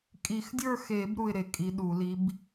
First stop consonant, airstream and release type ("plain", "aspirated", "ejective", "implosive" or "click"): ejective